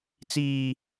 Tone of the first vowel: high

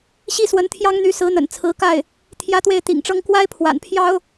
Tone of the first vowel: falling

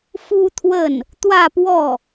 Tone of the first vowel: high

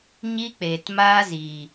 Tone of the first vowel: high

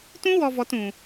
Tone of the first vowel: high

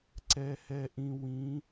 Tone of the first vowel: low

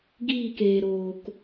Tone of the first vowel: falling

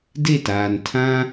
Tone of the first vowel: falling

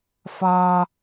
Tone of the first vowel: high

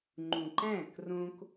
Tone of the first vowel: low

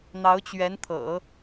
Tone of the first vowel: rising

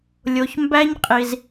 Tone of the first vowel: low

